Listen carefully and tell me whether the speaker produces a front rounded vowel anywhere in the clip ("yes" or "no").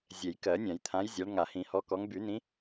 yes